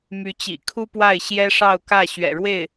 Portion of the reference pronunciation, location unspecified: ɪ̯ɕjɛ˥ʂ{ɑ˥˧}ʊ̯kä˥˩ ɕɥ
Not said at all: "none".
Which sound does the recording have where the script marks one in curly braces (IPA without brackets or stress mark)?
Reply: ɑ˥˧